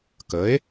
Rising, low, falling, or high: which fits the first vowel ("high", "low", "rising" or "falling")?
rising